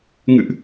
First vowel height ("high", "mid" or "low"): high